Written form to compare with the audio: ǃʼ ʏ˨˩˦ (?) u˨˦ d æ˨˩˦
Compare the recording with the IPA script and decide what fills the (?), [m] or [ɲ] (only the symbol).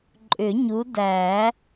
ɲ